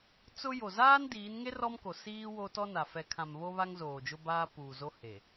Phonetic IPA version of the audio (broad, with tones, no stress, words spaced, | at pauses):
t͡sʊ˦ jo˨zaː˦ndiː˨˦nŋe˦r ɔ˦mko˨ siː˦ wo˦tɔ˦na˨ fɛ˨kʰã˨m βo˦βa˦ŋ zoː˨d͡ʒʊ˦ baː˦puː˨zo˦ he˨